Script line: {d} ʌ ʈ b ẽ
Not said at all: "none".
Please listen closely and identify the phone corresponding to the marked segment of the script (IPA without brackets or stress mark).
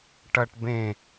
ʈ